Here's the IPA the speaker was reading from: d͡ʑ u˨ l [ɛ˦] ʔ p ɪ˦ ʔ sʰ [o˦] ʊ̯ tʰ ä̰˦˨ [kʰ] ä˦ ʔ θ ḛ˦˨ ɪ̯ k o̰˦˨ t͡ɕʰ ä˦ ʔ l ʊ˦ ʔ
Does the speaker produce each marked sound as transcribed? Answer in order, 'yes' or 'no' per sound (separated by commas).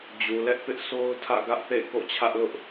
yes, yes, no